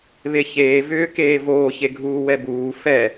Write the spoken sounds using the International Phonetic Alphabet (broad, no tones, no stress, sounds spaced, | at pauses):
β e ç eː v ʏː k eː v oː ç e ɡʱ uː w ɛ b uː f ɛ